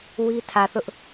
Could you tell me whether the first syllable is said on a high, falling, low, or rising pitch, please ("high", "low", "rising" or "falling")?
high